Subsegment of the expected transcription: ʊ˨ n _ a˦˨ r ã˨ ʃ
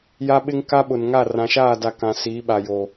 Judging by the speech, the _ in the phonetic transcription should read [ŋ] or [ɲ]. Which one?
ŋ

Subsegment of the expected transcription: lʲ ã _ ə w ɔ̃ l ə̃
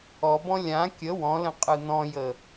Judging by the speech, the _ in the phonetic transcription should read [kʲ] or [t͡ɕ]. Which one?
kʲ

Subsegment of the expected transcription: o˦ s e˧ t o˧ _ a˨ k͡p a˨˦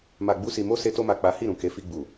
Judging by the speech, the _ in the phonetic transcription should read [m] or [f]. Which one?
m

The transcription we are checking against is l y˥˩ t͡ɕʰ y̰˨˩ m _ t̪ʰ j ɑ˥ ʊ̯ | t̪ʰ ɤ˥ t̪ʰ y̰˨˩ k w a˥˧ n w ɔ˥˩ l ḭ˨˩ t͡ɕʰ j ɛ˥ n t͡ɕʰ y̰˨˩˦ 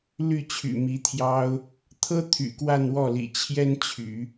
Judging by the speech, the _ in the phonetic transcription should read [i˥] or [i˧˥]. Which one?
i˧˥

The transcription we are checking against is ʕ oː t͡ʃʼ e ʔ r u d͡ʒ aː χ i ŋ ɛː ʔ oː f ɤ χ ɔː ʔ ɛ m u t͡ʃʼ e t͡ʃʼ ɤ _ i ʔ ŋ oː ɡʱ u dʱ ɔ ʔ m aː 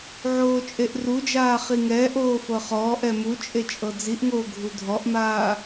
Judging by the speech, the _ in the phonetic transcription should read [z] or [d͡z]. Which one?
d͡z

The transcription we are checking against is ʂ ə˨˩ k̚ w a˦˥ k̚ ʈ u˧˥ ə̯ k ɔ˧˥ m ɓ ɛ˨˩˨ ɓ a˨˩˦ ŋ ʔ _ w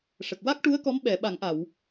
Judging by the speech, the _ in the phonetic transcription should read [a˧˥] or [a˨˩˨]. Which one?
a˨˩˨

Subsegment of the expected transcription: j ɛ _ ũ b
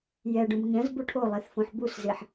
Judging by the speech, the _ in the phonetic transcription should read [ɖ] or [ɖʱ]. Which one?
ɖ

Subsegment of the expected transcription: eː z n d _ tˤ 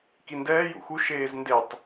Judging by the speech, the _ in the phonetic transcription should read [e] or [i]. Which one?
e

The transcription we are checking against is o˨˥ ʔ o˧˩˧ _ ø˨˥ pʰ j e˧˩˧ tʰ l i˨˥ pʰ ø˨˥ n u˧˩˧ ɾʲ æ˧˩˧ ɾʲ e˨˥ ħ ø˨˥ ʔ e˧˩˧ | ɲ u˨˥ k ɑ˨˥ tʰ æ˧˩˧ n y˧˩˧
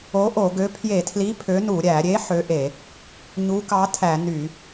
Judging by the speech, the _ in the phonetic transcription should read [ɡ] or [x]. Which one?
ɡ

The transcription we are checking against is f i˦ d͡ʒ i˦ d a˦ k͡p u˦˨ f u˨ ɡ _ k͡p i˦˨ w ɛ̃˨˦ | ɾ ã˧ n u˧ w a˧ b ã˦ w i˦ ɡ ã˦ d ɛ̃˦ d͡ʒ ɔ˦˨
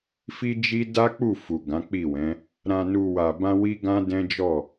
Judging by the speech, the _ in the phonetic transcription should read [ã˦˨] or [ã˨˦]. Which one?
ã˨˦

